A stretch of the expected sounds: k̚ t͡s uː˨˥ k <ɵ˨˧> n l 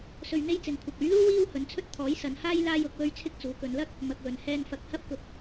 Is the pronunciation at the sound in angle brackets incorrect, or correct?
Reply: correct